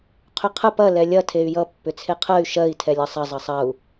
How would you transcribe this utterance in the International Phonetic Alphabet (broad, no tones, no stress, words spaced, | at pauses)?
qʰʏqʰə pɐ lɛlʲɐ tʰey̯jʌ pːʏt͡sʰeqʰɜy̯ ʃɜi̯ tʰɛlʲʌsˤɐ zˤʌsˤɐu̯